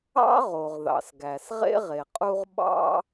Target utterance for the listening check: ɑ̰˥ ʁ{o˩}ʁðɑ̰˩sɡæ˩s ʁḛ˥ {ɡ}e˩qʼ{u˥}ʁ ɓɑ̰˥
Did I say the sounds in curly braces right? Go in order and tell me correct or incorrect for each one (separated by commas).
correct, incorrect, correct